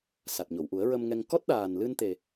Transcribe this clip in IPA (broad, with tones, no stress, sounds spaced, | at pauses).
s a˨˩ t̚ ɲ o˨˩˨ w ʔ u˨˩˦ ə̯ ɹ ə˧ m ŋ ɛ˧ ŋ k ɔ˦˥ t̚ ɗ aː˨˩ n l ɨ˧ n t̪ e˨˩